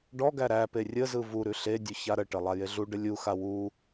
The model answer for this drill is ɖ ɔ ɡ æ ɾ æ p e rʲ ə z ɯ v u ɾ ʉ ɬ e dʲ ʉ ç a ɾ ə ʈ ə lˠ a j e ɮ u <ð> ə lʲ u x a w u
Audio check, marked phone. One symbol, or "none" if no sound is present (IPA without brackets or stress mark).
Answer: ɖ